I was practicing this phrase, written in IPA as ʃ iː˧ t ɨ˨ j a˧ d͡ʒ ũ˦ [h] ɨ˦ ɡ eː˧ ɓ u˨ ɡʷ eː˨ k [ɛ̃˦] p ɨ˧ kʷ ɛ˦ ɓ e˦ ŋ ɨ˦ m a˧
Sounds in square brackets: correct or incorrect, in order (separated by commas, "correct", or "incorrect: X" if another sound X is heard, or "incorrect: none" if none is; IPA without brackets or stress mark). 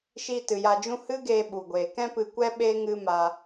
correct, correct